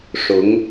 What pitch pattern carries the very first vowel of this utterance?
rising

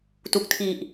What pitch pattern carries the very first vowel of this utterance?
low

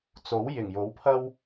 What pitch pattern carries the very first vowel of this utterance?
rising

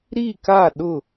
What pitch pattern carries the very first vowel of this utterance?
falling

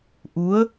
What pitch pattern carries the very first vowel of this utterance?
rising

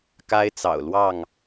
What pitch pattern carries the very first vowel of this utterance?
high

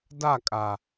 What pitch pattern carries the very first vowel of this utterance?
falling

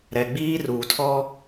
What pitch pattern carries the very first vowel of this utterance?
low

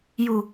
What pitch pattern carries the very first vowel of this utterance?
low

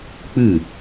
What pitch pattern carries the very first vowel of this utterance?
falling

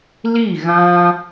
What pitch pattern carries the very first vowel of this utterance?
falling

